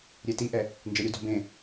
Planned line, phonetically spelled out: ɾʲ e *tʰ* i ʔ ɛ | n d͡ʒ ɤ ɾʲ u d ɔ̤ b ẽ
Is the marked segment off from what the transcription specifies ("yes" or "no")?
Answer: yes